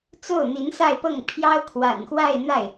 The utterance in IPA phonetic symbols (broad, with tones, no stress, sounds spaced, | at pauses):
t͡s o˥˩ ʊ̯ n̪ i˧˥ n s a˥˧ ɪ̯ p ɤ˥˩ ŋ pʰ j ɑ˥ ʊ̯ kʰ w a̰˨˩ n x w a˥˧ ɪ̯ n̪ a˥˩ ɪ̯